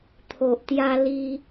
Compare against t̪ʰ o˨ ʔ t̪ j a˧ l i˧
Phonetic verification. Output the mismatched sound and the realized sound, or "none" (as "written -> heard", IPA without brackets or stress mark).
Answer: none